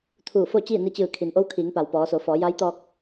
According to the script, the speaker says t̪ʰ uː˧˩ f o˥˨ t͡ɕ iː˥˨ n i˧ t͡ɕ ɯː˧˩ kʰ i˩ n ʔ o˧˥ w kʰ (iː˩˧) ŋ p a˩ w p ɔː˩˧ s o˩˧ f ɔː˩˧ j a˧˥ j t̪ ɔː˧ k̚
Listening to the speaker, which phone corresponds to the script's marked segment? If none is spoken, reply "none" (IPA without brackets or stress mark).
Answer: iː˩˧